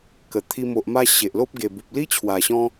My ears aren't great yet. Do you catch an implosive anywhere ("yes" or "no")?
no